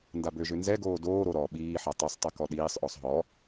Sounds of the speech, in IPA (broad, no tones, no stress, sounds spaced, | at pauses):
n d a b ø ʒ ø n z ɛ ɡ oː d oː ɾ o ɾ ɔ ɓ iː ħ a tˤ i sˤ tˤ e k ɔ ɗ iː sˤ ʔ ɔ sˤ ɦ ɔ